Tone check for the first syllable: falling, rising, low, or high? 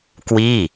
falling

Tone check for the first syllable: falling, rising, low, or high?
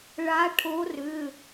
rising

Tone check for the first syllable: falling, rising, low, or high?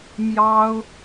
high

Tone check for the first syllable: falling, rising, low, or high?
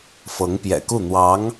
rising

